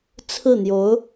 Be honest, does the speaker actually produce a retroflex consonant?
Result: no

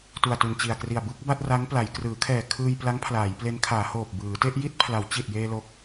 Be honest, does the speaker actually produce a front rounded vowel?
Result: no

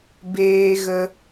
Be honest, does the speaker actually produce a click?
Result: no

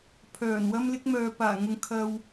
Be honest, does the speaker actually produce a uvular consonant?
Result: no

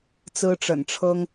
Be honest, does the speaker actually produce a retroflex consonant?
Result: yes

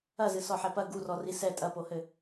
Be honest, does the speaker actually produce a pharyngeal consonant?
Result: yes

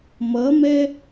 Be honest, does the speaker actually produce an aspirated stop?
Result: no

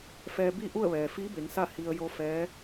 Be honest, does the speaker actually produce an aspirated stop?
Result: no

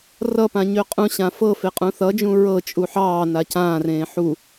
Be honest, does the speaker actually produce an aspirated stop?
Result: no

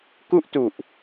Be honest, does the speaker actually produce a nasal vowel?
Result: no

